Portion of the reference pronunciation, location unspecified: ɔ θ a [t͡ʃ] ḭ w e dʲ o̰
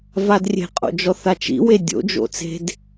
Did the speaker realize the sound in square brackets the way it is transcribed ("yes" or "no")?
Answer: yes